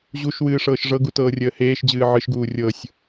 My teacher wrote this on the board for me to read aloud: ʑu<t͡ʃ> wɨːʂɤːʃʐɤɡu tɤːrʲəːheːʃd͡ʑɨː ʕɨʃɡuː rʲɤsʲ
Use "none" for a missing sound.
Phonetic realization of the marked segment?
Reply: ʃ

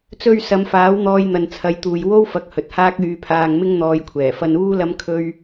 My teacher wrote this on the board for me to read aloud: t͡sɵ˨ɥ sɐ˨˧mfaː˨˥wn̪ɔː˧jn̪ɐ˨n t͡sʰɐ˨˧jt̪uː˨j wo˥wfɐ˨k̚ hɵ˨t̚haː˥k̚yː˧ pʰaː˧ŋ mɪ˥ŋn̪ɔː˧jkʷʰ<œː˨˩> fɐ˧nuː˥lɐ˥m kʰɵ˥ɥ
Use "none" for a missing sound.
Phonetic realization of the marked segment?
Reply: ɛː˨˩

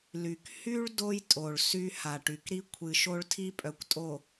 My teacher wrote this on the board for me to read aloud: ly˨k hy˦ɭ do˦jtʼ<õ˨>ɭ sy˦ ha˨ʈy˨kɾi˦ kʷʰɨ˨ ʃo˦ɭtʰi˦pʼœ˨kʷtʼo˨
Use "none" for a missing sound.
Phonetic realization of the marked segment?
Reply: o˨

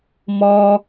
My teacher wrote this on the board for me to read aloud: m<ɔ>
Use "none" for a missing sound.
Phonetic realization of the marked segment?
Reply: ɔ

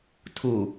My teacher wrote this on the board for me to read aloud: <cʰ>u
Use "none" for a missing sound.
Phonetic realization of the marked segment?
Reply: tʰ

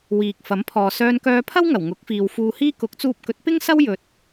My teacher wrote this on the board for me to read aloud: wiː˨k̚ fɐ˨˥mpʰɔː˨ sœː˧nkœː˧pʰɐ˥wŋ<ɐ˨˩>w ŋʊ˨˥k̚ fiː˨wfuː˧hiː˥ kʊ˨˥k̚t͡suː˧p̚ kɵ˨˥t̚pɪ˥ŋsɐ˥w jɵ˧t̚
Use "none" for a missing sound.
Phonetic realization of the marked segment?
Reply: ɐ˨˩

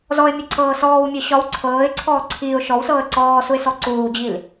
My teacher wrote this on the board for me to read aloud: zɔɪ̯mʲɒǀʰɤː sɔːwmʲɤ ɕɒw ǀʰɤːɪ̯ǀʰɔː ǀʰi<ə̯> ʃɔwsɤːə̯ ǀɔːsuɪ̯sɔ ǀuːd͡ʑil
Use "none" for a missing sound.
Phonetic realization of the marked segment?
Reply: ʊ̯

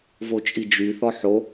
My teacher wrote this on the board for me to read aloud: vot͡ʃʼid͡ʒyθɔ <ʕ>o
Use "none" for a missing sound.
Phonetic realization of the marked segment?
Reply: ħ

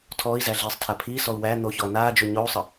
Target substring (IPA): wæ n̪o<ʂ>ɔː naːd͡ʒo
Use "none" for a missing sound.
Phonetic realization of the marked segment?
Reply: ç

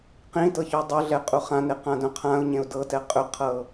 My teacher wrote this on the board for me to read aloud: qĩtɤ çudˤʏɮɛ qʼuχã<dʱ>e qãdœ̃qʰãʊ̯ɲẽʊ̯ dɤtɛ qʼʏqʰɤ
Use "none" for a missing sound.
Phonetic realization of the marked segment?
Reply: n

